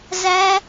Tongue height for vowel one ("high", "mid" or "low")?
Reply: low